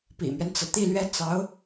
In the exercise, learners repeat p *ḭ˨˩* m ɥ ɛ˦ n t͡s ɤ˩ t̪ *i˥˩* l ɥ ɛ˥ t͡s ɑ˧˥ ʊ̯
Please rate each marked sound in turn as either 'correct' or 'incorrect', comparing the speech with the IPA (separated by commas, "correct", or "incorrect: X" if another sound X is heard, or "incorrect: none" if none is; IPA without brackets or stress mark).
correct, correct